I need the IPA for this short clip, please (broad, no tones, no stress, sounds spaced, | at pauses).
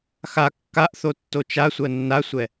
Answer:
x a kː a ʔ θ o tː o t͡ʃ a sʷ ɜ nː a sʷ ɛ